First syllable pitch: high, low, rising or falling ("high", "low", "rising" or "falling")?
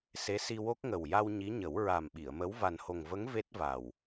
rising